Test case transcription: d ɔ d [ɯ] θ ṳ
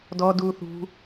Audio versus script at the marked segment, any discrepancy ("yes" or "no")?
yes